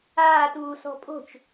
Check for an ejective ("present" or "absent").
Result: present